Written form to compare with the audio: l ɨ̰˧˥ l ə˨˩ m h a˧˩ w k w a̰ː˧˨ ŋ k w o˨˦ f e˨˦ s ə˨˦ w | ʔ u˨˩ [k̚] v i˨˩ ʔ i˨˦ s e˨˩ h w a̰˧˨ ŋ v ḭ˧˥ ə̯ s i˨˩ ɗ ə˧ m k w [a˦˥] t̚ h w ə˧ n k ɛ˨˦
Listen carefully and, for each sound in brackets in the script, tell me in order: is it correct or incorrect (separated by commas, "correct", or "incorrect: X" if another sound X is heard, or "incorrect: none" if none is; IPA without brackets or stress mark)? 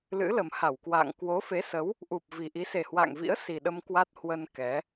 incorrect: p̚, correct